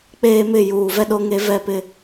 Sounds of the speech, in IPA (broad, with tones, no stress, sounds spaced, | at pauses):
k͡p eː˦ m ɪ˦˨ j uː˨ v ɛ˦ ɗ o˦ ŋ e˦ v ɛ˦˨ p ɪ˦